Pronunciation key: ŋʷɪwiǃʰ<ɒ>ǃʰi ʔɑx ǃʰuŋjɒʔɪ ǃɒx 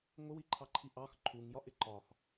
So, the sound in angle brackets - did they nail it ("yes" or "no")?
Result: no